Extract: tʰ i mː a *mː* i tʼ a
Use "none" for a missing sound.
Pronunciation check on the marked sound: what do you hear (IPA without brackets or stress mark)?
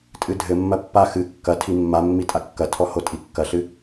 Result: mː